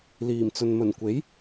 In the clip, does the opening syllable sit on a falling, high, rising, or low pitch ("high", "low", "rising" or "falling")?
low